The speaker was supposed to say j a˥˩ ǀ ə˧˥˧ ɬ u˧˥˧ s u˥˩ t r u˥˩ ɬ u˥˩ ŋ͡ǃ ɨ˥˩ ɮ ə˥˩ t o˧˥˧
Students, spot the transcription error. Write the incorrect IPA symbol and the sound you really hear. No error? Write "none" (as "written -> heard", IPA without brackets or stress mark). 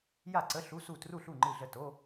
none